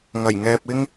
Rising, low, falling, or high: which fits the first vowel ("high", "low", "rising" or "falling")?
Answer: low